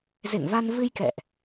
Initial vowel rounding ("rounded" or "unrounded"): unrounded